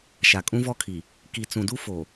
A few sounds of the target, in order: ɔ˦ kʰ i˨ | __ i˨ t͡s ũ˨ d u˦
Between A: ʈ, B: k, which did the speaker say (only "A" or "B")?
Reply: B